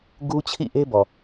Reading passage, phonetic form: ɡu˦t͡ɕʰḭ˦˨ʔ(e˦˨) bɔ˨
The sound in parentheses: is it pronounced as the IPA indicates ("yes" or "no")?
no